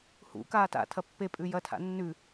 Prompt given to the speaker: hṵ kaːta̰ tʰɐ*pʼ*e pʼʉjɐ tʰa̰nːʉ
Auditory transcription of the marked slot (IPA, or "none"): pː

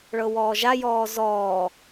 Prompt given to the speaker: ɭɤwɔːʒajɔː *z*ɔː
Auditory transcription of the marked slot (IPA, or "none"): z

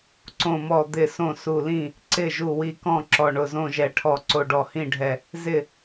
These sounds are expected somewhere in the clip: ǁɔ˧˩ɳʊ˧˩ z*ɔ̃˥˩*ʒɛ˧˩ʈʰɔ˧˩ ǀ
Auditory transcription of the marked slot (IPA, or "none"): õ˥˩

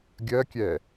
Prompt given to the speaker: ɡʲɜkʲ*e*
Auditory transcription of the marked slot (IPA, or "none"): ɛ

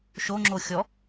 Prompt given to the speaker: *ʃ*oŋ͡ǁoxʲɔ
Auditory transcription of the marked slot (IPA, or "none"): ʃ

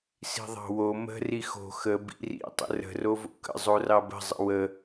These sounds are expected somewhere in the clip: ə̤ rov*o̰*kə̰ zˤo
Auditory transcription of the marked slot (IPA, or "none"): o̰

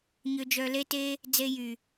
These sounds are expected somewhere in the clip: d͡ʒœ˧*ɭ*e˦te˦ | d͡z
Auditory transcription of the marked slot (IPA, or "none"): l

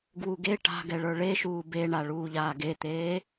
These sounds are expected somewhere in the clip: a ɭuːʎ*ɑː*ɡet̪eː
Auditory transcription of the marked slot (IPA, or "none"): aː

